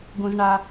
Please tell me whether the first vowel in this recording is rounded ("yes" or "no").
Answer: yes